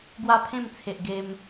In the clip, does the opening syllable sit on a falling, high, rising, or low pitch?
high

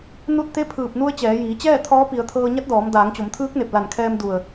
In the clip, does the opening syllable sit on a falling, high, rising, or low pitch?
falling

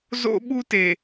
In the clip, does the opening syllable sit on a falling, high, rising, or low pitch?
high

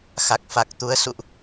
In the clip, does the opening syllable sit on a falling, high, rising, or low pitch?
low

